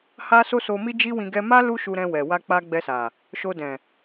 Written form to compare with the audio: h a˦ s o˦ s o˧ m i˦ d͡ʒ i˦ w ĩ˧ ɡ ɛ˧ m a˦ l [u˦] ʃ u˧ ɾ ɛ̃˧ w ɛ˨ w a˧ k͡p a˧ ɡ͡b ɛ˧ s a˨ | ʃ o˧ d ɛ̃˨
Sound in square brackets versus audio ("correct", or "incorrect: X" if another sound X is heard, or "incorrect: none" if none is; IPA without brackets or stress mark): correct